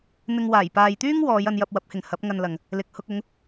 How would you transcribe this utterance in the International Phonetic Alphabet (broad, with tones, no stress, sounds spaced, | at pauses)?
n̪ ɪ˧ ŋ w aː˨˩ j p aː˨ j t̪ yː˥ ŋ w ɔː˨˧ j ɐ˧ n j ɐ˧ p̚ w ɐ˨˥ p̚ h ɪ˨ ŋ h ɐ˨˥ p̚ ŋ ɐ˧ n l ɐ˨ ŋ | l ɪ˨ k̚ h ʊ˧ k̚ ʊ˨˧ ŋ